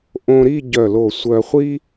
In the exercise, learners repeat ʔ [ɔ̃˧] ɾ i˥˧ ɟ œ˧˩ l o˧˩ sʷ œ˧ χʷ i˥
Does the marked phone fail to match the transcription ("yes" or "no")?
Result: yes